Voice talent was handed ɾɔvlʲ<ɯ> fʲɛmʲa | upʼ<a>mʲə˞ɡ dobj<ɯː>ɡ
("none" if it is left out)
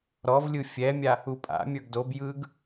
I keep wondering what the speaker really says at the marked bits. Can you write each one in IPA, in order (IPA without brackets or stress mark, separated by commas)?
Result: ɯ, a̰, ɯː